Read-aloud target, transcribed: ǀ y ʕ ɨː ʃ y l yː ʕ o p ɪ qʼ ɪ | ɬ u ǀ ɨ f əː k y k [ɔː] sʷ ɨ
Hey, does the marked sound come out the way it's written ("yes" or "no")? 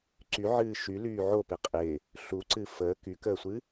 no